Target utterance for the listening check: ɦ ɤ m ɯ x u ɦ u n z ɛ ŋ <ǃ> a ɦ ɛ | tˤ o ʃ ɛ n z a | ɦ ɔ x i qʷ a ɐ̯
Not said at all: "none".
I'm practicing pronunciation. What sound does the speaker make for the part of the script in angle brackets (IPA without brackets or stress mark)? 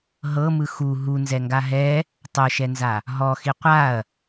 ɡ